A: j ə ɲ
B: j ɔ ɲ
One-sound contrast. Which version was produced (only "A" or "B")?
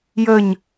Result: A